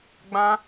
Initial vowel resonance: nasal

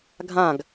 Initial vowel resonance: nasal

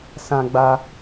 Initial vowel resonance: nasal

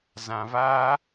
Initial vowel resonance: nasal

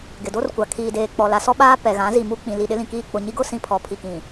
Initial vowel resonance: oral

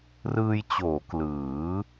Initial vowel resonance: oral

